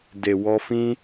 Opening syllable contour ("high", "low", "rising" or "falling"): low